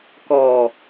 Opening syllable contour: low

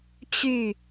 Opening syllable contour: falling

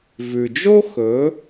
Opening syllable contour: low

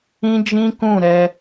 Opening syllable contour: high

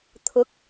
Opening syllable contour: rising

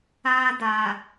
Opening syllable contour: high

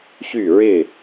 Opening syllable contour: falling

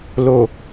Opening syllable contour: low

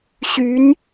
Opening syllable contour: rising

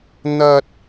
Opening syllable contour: high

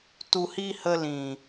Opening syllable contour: low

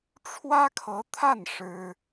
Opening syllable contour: high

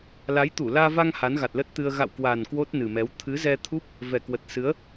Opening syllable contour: rising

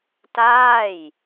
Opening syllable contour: falling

